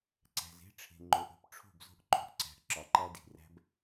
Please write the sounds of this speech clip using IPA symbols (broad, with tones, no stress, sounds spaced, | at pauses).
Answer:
ǀ æ̤˨ z e̤˦ ʈ͡ʂʰ e̤˨ ŋ͡ǃ o˨ ʔ o̤˦ p ʈ͡ʂʰ o̤˦˨ b z o̤˦ ʔ ǃ o̤˦ ʔ ǀ æ̤˨ ʔ ǁ ɒ˨ ǃ æ˦ d i̤˨ r æ̤˦ b